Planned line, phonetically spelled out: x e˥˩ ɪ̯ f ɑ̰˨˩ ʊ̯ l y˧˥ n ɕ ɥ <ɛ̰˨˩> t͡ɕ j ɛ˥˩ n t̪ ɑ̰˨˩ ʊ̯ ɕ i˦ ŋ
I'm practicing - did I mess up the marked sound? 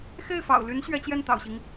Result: yes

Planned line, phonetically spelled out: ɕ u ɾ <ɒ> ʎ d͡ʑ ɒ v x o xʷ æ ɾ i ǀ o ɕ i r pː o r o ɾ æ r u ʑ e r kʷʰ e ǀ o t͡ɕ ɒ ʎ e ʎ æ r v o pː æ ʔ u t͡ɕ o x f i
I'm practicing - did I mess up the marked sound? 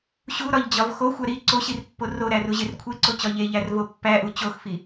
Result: no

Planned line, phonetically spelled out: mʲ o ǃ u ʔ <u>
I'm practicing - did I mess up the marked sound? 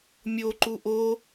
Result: yes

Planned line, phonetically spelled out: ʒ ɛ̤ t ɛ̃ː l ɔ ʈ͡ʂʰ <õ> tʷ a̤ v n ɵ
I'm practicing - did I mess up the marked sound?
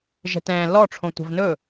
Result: no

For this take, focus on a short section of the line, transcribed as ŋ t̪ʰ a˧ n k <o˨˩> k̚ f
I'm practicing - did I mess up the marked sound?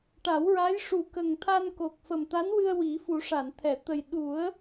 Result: no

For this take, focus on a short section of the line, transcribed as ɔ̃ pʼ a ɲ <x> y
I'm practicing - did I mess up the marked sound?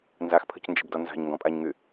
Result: yes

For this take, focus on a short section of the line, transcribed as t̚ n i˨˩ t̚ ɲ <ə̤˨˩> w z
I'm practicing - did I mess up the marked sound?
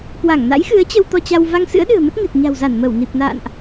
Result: yes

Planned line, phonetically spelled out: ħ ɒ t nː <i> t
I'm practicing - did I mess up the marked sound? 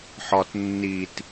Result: no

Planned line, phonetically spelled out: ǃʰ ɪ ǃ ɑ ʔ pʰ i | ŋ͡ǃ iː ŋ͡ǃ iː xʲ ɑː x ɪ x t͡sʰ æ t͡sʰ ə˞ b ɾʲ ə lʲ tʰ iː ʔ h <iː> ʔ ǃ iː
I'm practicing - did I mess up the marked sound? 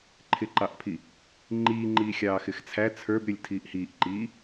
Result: no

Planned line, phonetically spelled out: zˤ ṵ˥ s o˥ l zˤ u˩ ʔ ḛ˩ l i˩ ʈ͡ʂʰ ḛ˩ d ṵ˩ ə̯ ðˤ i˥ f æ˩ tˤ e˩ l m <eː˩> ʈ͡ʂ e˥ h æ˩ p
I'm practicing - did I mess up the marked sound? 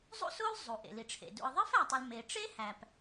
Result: yes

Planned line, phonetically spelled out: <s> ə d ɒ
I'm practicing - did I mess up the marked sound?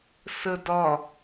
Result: no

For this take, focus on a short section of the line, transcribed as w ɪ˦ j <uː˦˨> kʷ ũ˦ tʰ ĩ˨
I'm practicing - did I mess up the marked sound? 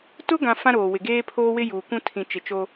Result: yes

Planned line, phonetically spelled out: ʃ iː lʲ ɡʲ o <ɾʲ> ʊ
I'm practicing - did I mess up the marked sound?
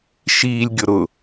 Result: yes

